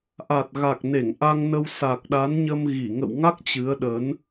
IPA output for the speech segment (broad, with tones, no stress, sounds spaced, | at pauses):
ʔ a˨˩ t̚ ɣ a˨˩ k̚ n e˧˩ ŋ ʔ a˧ ŋ n ə˧ w s a˨˩ k̚ ɗ a˨˦ n ɲ ə˧ m ɣ i˧˩ ŋ ə̰˧˨ w ŋ a˦˥ k̚ t͡ɕ ɨ˨˦ ə̯ ɗ ə˨˦ n